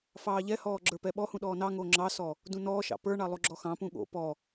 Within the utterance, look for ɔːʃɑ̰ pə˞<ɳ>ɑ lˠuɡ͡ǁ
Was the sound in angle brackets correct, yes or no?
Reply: yes